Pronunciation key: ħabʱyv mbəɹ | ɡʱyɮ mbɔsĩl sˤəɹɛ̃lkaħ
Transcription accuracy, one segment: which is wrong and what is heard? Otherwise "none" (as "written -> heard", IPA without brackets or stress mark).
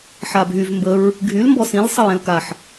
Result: ɮ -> l